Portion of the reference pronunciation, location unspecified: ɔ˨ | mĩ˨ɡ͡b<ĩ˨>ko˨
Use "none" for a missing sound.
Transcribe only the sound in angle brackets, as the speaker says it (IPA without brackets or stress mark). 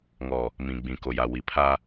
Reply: ĩ˨